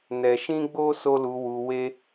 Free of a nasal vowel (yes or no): no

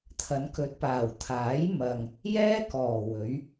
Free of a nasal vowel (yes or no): yes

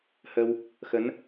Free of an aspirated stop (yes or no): yes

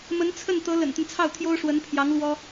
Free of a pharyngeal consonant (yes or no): yes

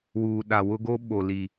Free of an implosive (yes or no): no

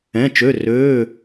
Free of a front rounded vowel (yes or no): no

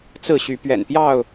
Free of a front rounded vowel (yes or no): no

